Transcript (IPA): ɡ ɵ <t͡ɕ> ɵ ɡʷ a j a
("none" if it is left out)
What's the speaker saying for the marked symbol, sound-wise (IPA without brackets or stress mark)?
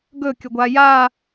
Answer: kʲ